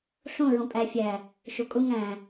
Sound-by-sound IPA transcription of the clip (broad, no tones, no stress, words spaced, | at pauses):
ɬõ ɹõpʼæ fʲæ | ʃokʼʊ ŋæ̃